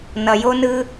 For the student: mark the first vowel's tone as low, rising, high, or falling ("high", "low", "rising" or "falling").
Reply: low